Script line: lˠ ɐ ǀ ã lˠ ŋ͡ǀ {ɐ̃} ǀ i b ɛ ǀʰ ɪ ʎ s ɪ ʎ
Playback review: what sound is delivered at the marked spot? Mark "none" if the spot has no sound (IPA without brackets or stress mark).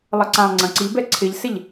ɐ̃